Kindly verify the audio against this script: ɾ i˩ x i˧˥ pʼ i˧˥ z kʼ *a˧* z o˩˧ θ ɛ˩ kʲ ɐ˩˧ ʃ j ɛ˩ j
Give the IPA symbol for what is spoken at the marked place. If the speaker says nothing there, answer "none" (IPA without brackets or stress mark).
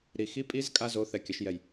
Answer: a˧